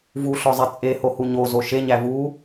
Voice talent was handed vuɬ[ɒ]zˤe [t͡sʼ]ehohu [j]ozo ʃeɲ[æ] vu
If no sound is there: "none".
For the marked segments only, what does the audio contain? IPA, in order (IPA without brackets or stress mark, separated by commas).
ɒ, t͡sʼ, ɲ, æ